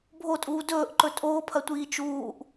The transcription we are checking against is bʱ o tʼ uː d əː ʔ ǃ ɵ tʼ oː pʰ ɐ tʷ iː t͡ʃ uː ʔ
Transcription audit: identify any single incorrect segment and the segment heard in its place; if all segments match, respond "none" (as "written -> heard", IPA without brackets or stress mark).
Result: əː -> ɵː